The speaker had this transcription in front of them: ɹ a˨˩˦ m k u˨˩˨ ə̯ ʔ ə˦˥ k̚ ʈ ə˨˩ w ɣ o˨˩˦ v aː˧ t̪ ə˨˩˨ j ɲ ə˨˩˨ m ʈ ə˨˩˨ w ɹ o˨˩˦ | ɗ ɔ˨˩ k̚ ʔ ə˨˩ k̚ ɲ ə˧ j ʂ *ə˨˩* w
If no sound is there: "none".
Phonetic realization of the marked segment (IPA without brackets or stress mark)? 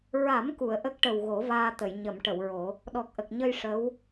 ə˧˥